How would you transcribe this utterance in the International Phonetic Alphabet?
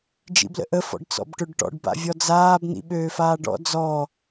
d͡ʒḭblə̰ʔə fɔ̰ɖt͡sɔ̰bʈøɖʈɔ̰ɖ ba̰vʲɔd͡zaːb n̪ḭɓøːfaːɖɔ̰ d͡zɔ

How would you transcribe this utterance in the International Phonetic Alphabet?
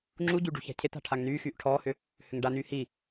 ŋ͡ǁuɟy ɖṳça̤cʰeta̤ ʈʰaŋnyːxyːʔ ʈʰɔːhʏ | hʏŋɖanyː hi

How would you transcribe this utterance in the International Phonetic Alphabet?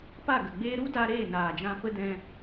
pa˦˨ɡə˨ɡ͡beː˦ ɾu˦da˧ ɾeː˦˨naː˨d͡ʒã˧ pə˦ dɛ̃˧

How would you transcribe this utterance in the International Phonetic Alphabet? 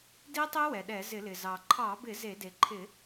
di˦˥tˤe˦˥wɛ˩ɗɛ˧˩˧ zɪ˧˩˧lɪ˩ zɑ˩ǃʰɑ˧˩˧bɪ˧˩˧ ze˧˩˧ de˩ǃʰɪ˧˩˧

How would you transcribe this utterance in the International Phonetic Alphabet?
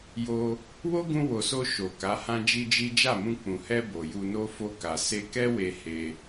jo˧ | wo˦ɡũ˧ wo˨so˧ ʃo˨ka˨˦ hã˦d͡ʒi˦d͡ʒi˦ d͡ʒa˦˨mũ˧ k͡pũ˨hɛ˧ bo˨ju˧no˦ fo˧ka˨ se˧kɛ˦we˧ he˧

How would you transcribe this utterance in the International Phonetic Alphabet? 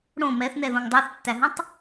ɽõ mɛθnɛðõŋ dˤæθtːæɦũtˤ

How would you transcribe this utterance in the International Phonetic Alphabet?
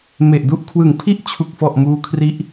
me˨˩ʔ du˦˥ʔkʰwɯ˨˩ŋ pʰi˥˩ʔt͡ɕʰu˨˩k̚fɔ˨˩ʔ muː˦˥kʰri˦˥ʔ

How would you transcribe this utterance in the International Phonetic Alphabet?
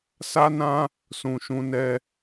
sa˦nã˦ | sũ˨ʃũ˨˦ nɛ˧

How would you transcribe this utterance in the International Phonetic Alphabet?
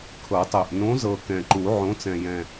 kʰɤ˨˩˦tˤɛ˨˩ʔ nõ˨˥zɤ˨˩ kɛ̃˨˩ǃu˨˩˦ ʕõ˨˥t͡sɛ̃˨˩jɛ̃˨˩

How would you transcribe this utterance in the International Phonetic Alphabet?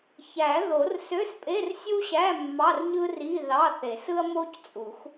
çæ˨˩˦ðo˨˩˦r sø˧˥˧spʼe˧˥˧rsʲu˥ɕæ˧˥˧ mːɑ˧˥˧rɲɯ˥ri˧˥˧ðɑ˧˥˧ θe˨˩˦s ɯ˥ɐ̯mo˥c t͡sʼu˨˩˦x

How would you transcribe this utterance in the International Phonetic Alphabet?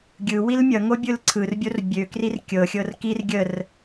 ɡʲɯ wilmʲʌŋo bʲɯlǀʰɯrbʲor bʲøkrir kʲɤxʲɤr kir ɡʲər

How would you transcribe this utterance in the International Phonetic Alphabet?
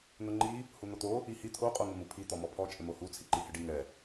n̪ʊŋ͡ǃi | hun̪ot̪o | ihi t̪ʰo qʼoŋɪmu pʰi t̪ɔmɔpʰɔ t͡ʃʼɪmohu t͡sʰiǃihɪɖi ŋɛ

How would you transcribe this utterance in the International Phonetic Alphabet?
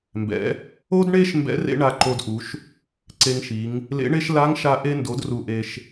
mbɛ̰˩˧ | o˥dɳe˥ʃ mbɛ̰˧˥ rḛ˥ ɳa˧ǃo˧dʔu˩˧ʃ | ǀe˧ŋʃi˩˧ŋ | lḛ˧˥ɳe˥ʃ la˧˥ŋʃa˧ ʔe˧ndo˩˧d ru˩ʔe˩ʃ

